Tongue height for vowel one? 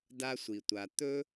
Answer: low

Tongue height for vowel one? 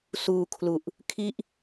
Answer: high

